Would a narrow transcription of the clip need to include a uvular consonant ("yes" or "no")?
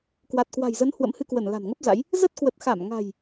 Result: no